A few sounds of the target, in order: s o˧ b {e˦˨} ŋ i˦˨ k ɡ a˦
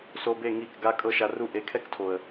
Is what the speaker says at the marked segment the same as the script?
yes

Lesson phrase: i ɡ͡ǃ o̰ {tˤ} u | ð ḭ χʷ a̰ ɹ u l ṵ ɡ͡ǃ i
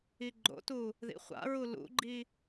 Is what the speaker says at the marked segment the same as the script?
no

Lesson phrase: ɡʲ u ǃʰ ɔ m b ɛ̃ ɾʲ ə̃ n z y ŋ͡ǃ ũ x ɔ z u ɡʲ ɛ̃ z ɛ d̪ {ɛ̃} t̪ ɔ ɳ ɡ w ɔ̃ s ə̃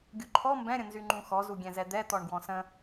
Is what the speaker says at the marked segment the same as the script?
no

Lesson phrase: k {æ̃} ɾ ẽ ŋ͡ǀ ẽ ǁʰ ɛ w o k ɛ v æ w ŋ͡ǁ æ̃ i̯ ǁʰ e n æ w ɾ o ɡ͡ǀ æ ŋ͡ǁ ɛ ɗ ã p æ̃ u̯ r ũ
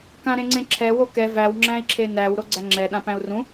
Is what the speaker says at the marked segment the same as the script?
no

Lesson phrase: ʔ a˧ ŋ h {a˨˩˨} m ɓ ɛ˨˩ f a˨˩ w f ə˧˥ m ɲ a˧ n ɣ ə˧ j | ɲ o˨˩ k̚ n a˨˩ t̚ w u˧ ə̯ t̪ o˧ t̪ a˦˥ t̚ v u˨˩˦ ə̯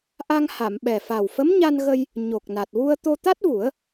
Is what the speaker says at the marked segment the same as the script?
yes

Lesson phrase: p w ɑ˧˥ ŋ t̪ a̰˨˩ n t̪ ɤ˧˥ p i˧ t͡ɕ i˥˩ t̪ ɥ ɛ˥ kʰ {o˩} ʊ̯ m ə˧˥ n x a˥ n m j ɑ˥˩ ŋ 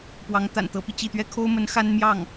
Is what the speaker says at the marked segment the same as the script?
no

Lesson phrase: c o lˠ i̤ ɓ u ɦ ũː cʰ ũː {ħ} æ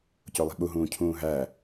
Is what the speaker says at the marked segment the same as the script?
no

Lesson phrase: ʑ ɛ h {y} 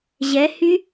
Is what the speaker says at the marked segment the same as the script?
yes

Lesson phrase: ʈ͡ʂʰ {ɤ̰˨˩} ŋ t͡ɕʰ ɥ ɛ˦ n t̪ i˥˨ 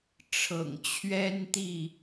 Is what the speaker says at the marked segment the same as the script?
yes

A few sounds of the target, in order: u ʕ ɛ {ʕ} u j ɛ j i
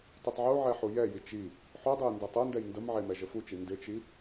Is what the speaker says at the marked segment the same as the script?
no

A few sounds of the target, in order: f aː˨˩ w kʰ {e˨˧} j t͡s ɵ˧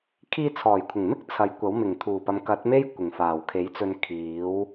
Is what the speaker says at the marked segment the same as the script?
no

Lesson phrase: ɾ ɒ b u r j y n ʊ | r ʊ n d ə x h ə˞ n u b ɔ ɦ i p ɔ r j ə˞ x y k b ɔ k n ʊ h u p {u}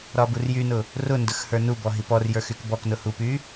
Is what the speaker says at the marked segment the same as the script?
no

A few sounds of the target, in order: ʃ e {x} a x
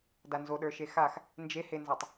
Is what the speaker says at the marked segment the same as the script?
yes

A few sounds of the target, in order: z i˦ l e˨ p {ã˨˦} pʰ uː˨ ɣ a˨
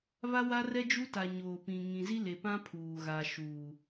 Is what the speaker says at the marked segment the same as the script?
no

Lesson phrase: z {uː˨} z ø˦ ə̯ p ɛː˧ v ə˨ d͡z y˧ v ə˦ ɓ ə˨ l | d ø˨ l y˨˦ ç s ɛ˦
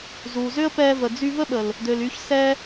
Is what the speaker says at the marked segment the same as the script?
yes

